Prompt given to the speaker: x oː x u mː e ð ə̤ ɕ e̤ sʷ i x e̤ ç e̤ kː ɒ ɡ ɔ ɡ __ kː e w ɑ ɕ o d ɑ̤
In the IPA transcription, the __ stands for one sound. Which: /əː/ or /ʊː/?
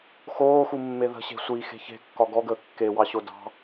əː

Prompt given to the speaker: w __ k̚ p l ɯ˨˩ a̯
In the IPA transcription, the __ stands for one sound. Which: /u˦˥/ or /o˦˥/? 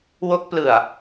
o˦˥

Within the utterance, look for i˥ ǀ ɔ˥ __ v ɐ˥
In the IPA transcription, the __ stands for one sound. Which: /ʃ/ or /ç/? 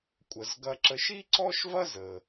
ʃ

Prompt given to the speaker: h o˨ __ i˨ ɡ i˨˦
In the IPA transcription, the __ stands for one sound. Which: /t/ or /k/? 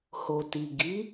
t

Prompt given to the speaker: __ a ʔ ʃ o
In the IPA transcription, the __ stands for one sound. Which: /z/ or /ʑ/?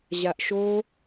ʑ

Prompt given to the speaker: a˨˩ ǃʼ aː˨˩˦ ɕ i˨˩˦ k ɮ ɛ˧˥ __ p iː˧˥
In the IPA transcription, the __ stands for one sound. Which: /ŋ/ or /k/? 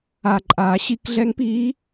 ŋ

